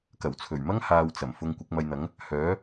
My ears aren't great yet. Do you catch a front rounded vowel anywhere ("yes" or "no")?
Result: yes